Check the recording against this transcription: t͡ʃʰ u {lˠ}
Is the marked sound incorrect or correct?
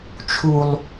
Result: correct